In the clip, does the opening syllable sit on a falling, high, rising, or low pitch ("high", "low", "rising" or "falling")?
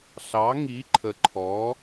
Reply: rising